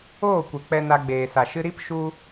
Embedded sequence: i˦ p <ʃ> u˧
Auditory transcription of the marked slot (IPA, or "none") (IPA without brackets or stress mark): ʃ